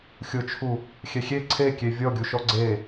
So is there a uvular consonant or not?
no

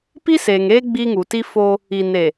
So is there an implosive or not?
no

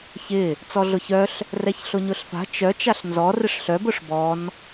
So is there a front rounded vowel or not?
yes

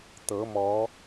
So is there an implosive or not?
no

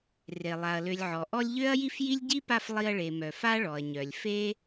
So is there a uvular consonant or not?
no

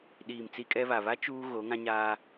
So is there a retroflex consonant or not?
no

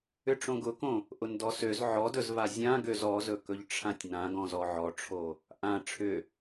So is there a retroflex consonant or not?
yes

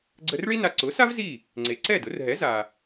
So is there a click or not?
yes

